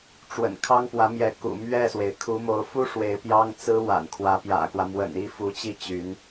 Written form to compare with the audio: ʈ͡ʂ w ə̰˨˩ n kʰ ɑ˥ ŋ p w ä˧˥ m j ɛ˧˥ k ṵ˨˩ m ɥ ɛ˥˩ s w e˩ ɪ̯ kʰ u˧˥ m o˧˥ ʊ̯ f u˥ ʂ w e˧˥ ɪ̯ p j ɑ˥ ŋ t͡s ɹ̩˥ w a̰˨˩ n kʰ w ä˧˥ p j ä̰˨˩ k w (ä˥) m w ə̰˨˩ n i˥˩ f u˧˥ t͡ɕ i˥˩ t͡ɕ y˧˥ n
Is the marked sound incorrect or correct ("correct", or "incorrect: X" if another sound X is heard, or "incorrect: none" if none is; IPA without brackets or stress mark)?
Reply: incorrect: ä˦